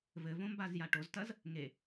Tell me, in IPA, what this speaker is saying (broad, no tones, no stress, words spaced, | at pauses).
vɘvõmbazja ʈoztɐz | ŋe